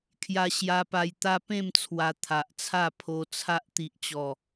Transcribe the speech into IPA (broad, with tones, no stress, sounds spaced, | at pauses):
kʰ j a˧ ɕ j a˧ p a˧ j t̪ a˦ p ẽ˥˧ m t͡sʰ w a˧ t̪ʰ a˨ ʔ t͡sʰ a˥˧ pʰ o˧ t͡sʰ a˦ ʔ t̪ i˨ ʔ t͡ɕ ɔ˨˩